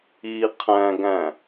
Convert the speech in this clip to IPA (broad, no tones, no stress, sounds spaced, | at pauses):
i qʰ æ̃ ɡ æ̃